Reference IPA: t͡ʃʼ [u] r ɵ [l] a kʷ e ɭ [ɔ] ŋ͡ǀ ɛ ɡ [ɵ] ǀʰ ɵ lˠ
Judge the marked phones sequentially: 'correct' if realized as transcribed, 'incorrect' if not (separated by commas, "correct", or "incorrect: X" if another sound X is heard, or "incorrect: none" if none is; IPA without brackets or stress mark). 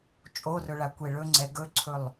incorrect: o, incorrect: ɭ, incorrect: ɵ, correct